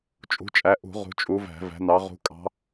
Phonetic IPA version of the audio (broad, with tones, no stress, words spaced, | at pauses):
t͡ʃʼṳ˨˦t͡ʃʼæ˨˦ʔṳ˧˩˧ ʁṳ˨˦t͡ʃʼu˨˦væ̤˧˩˧ væ̤˨˦nɑ˨˦ ʁṳ˨˦kʼɑ̤˨˦